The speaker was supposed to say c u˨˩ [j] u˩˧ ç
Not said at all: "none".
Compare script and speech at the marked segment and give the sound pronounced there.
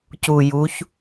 j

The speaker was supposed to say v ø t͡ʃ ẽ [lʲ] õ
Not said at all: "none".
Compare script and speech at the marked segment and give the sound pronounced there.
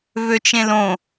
l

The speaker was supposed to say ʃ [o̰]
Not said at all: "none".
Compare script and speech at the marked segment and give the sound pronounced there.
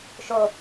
o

